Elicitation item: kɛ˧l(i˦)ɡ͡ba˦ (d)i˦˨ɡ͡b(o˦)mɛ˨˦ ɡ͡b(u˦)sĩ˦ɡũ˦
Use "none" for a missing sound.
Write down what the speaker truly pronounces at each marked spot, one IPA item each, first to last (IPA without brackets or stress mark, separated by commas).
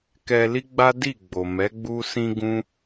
i˦, d, o˨, u˦